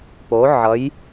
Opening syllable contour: rising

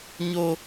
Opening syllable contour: high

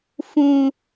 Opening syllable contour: low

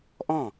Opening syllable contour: falling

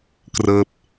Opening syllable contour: falling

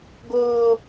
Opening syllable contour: high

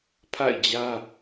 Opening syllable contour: falling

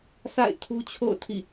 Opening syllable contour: falling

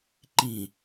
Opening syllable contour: low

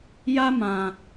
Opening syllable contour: high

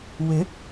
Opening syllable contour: rising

